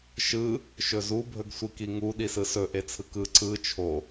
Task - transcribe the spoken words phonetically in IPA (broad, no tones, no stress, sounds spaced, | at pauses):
ʃ ɯ | ʃ ɵ z u bʱ ɵ ɡ sʷ i k i ŋ u ɗ i s ɯ s ɵ ʔ e t͡sʰ ɯ k ɯ ǀ ɯ t͡ʃʰ o